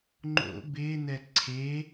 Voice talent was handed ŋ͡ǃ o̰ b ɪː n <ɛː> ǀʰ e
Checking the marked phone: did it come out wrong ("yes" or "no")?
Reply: yes